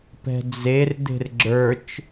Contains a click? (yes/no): yes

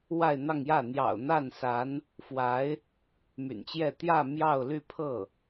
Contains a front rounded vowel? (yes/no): yes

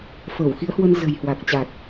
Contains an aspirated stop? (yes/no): no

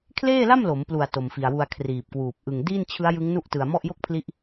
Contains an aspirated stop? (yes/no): yes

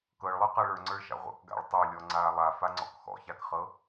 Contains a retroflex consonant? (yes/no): yes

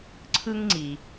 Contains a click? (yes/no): yes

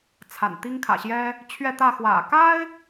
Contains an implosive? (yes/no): no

